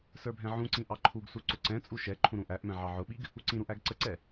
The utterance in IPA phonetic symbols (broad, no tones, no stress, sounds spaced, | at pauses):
s ə˞ bʱ ɛ̃ ʕ ũ ǀ ĩ ʔ ɑ ǃʰ u ɡ s u ǀ ʊ ǀ ɛ̃ t͡sʼ u ʃ ɛ ǃʰ ũ ɾ ũ ʔ æ ʔ m ɛ̃ ʕ ɑ ʕ ʊ ɓ i ɡ | u ǀ ĩ ɾ u ʔ æ ɡ ǀ ə ǀ ɛ